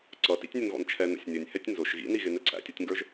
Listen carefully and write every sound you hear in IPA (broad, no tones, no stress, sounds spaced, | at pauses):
ǀ ʌ t ḭ tʲ nʲ ʊ n ɣ ɔ̰ n t͡ʃʰ ɛ n ə̰ sʲ nʲ ʊ nʲ h ɛ tʲ n z ʊ ʃ ɣ ḭ n i ɣ ɪ n ɛ ǀʰ æ̰ tʲ ɔ tʲ ŋ ɡ ə˞ ʒ